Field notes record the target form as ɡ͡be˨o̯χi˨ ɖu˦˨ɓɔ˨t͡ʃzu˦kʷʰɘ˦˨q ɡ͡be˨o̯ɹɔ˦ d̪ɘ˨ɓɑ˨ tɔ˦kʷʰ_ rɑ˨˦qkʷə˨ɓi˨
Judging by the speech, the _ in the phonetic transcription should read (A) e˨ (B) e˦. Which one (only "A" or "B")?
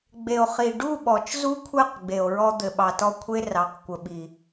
B